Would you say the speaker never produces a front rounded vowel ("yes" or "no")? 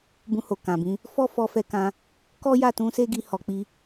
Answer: yes